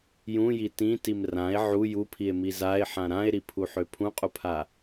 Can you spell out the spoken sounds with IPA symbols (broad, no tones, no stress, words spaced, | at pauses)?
jũji tĩtim rãe̯ ʕu jupʰie̯mi zae̯ħã ɾãe̯ɾipʰuħø pʰũqʼupʰa